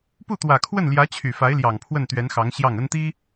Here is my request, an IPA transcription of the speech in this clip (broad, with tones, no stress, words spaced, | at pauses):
pu˥˩t̪wä˨˩kʰwə˥˩nljä˧˥ t͡ɕʰy˨˩fa˧˥ɪ̯ljɑ˨˩ŋ pʰwə˥˩nt̪ɥɛ˧˥nxɑ˧˥ŋ ɕjɑ˥˩ŋə˥nt̪i˥